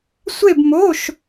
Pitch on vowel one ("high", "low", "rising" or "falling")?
falling